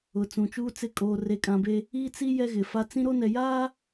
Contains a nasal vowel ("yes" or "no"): yes